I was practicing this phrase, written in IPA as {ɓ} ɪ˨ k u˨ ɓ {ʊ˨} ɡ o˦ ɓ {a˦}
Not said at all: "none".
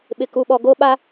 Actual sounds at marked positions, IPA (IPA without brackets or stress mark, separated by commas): ɓ, ɔ˨, a˦